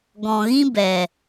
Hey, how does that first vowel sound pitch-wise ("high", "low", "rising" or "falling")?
low